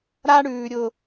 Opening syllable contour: high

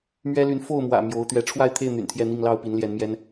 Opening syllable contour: high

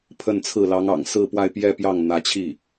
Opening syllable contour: falling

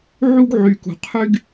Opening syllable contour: high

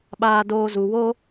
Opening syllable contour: high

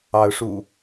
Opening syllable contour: rising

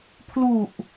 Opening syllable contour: low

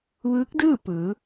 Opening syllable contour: rising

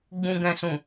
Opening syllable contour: low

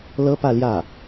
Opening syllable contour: high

